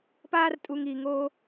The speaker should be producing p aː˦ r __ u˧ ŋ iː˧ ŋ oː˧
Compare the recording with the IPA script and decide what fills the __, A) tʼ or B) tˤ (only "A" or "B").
A